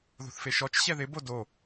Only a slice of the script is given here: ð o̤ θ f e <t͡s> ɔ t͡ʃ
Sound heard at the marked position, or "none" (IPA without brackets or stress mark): ʃ